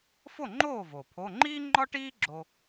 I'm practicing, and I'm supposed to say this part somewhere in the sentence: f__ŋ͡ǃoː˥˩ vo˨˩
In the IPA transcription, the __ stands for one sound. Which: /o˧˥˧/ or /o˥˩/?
o˥˩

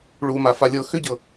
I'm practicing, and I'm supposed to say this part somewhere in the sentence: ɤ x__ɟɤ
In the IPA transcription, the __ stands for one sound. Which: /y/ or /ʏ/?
ʏ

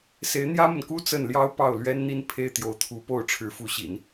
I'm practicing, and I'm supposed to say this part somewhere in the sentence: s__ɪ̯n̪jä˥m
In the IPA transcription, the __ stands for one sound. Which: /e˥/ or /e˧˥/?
e˧˥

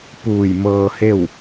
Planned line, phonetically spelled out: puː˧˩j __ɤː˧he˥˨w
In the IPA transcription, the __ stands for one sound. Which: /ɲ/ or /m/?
m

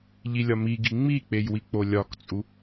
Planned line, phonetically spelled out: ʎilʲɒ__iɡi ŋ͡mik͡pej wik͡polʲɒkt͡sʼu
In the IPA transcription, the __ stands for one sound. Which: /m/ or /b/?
m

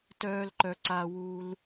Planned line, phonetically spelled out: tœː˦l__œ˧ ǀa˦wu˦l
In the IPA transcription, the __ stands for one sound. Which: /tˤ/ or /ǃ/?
ǃ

